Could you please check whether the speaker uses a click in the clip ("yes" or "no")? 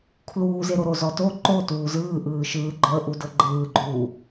yes